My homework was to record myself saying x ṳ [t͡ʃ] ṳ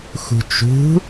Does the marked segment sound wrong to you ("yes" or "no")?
no